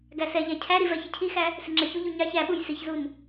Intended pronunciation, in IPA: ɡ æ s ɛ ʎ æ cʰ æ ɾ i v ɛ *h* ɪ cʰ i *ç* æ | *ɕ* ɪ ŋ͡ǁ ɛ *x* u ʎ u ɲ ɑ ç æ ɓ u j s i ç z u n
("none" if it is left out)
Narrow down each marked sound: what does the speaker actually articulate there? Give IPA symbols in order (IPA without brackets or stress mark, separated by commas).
ç, x, s, ç